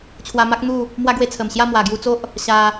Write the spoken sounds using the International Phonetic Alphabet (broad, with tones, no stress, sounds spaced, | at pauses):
t͡ɕʰ w a˧ m a˦ k̚ n̪ u˥˧ | m w a˦ ɡ w e˧ t͡sʰ ə˨˩ m ɕ j a˥˧ m w a˨˩ ɡ j u˧ t͡s o˦ ʔ | ɕ a˧